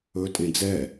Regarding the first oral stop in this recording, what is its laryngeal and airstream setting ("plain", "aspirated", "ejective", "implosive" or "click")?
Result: ejective